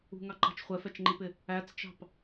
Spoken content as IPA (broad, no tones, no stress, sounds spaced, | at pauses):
ṳ ŋ ɑ ǃ ɑ̤ t͡ʃ χʷ ɛ f ɛ t͡ʃ ŋ͡ǃ i p ɪ | æ t͡s t͡ʃ ɑ̤ p